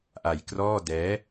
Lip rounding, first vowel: unrounded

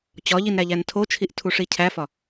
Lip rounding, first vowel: rounded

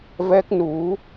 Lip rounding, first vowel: unrounded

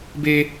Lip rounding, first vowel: unrounded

